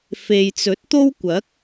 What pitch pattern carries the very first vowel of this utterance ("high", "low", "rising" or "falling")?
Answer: low